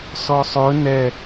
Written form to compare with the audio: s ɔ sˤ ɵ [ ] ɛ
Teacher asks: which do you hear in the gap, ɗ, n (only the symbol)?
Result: n